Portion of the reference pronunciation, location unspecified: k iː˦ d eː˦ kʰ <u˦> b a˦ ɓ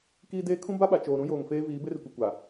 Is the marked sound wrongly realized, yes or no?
yes